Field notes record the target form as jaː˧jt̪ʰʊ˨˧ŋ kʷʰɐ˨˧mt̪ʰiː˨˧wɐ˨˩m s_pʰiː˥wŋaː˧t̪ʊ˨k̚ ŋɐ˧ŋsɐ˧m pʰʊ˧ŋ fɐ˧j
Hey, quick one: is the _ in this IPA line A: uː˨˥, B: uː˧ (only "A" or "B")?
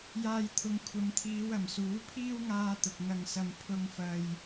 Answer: A